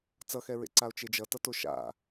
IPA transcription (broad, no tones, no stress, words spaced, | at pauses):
t͡sʌxɛɹḛǀao̯ t͡ʃed͡ʒʌtʌ toʃa̰